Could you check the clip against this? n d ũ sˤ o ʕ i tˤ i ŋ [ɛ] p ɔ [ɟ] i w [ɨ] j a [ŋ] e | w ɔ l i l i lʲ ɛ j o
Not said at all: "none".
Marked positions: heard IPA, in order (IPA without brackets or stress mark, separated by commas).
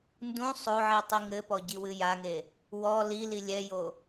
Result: ɘ, ɟ, ɨ, ŋ